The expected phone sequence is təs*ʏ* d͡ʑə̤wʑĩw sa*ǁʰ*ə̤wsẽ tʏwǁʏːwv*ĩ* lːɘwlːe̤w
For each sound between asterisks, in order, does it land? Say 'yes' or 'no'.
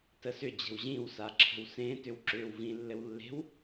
yes, yes, yes

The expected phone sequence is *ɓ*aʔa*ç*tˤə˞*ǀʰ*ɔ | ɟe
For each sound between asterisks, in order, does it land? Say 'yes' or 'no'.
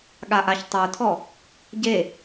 no, yes, no

